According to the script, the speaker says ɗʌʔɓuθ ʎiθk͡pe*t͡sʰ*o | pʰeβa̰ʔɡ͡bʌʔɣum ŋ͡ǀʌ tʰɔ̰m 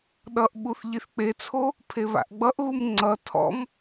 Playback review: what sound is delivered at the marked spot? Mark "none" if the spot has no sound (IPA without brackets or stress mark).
t͡sʰ